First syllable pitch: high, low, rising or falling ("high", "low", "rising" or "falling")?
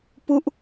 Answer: falling